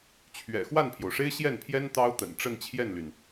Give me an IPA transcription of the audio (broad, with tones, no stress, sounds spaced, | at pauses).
t͡ɕʰ ɥ ɛ̰˨˩ x w a˥˩ n pʰ j o˩ ʊ̯ ʂ e˥ ɪ̯ ɕ j ɛ˥˩ n pʰ j ɛ˥ n t̪ ɑ˥ ʊ̯ t̪ ə̰˨˩ n ʈ͡ʂ ə˥˧ n t͡ɕʰ j ɛ˥˩ n l y˩ n